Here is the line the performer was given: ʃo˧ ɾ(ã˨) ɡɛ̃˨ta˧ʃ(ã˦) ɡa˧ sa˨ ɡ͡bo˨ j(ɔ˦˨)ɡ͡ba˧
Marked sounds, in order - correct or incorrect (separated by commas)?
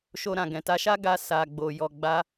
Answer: correct, incorrect, incorrect